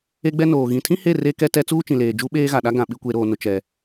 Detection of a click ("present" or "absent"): absent